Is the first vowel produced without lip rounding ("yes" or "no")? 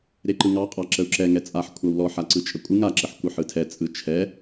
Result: yes